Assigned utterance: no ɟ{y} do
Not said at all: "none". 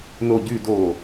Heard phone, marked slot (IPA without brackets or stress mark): y